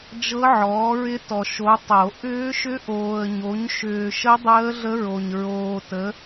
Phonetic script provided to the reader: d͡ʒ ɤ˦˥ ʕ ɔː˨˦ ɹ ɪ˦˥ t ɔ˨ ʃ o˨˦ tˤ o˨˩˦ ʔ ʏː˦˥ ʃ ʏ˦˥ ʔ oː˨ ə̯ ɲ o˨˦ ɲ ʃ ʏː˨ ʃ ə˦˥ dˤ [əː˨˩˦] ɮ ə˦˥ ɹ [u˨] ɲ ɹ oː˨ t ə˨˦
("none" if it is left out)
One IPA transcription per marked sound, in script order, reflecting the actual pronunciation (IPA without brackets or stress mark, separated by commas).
əː˦˥, o˨